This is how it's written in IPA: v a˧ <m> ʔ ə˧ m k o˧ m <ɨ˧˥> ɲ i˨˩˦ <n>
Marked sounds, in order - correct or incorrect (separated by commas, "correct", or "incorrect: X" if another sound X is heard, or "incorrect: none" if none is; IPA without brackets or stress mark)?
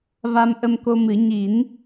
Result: correct, incorrect: ɨ˨˩˦, correct